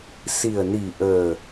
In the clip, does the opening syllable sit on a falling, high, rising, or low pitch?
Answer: low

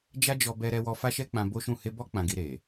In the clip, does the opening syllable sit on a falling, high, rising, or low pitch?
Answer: high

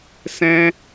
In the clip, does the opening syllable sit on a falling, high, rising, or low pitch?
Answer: high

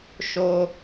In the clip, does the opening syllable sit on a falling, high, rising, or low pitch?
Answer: high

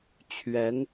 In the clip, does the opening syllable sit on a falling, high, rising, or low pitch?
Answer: rising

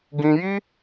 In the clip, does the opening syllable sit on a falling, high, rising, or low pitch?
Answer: high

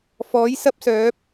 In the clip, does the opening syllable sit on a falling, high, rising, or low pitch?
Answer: rising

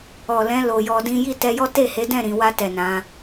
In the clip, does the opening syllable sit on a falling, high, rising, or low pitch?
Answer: low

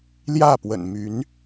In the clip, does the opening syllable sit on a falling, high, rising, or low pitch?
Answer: falling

